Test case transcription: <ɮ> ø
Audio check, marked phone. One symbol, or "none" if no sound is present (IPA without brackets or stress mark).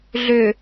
ɮ